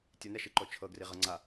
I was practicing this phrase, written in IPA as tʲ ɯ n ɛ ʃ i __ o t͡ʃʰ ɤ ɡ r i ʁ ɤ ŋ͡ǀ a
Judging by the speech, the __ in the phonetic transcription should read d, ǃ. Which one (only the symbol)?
ǃ